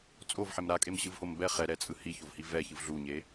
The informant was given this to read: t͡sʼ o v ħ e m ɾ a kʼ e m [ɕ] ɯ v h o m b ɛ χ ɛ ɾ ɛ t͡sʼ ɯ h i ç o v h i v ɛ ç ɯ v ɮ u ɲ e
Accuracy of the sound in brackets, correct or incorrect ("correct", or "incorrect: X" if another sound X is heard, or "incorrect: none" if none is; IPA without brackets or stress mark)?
correct